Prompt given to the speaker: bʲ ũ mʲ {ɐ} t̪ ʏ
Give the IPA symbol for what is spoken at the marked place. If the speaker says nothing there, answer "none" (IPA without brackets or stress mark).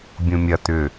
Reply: ɐ